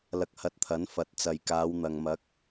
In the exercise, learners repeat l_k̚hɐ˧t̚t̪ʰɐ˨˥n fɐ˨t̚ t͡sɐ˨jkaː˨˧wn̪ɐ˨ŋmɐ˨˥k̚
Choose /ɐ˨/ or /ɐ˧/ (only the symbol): ɐ˧